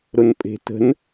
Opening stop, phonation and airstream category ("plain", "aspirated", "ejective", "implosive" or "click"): ejective